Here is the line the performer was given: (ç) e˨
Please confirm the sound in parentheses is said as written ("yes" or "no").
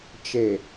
no